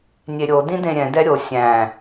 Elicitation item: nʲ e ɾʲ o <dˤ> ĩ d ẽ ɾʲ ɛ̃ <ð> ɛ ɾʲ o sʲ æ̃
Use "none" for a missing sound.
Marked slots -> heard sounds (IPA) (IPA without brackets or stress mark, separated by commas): d, d